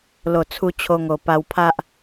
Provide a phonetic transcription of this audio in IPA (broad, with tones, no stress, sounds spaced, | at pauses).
l o˨˩ t͡sʰ u˧ t͡ɕʰ o˧ ŋ o˨˩ p a˧ w pʰ a˦ ʔ